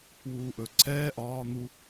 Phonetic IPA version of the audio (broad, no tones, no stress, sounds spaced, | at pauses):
w uː ʔ ɵ ǀʰ ɛː ʔ ɒː n̪ u